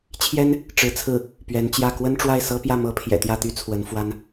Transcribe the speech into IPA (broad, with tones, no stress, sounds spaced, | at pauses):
t͡ɕʰ j ɛ˥ n | ʈ͡ʂ ɻ̩˧˥ t͡sʰ ɹ̩˥˩ | p ɥ ɛ˧˥ n t͡ɕ j ä˥˩ k w ə˥ n ʈ͡ʂ w a˥˩ ɪ̯ s ɤ˥ p j ä˥˩ m ɤ˥ pʰ j ɛ̰˨˩ t̪ j ä˥˩ t̪ y˥ t͡sʰ w ə˧˥ n f w a˥ n